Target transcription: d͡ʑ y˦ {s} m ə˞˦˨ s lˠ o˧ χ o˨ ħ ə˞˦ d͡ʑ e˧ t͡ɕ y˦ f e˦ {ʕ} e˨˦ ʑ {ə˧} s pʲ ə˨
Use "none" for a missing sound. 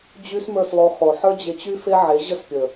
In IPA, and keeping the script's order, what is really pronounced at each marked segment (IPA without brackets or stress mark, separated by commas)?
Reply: s, ʕ, ə˦